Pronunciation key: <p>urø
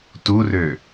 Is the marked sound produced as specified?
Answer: no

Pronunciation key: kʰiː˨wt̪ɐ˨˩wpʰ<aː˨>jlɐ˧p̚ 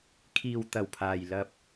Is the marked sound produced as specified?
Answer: yes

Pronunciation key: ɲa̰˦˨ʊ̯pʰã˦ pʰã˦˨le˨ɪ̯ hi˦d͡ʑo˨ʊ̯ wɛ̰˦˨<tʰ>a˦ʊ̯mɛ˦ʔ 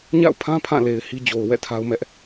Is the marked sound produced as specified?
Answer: yes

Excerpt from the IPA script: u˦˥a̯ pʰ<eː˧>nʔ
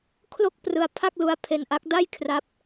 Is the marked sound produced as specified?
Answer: no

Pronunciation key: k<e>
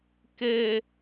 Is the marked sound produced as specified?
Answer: no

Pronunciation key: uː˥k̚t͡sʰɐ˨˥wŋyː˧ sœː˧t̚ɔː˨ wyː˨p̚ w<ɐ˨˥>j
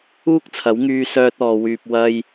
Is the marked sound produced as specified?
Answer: no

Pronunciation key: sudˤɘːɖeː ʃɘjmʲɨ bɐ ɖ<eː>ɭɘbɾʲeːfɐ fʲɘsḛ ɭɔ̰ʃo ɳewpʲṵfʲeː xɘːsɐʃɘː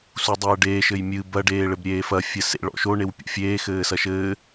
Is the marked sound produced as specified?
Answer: yes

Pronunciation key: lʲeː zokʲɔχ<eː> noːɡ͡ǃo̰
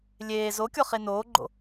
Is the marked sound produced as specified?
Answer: no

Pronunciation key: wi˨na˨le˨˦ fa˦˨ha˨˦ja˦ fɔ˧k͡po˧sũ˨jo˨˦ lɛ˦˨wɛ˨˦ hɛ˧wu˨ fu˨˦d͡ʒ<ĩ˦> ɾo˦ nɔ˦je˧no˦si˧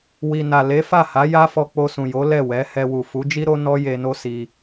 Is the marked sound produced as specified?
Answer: no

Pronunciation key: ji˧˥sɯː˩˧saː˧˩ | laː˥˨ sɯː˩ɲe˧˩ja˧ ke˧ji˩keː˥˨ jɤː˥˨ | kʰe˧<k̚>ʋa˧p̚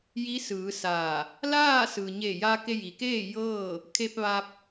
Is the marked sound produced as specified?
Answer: no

